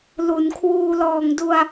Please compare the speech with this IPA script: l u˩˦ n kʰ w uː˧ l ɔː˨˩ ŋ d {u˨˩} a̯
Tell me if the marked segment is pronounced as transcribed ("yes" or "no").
no